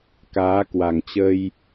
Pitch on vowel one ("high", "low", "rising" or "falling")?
rising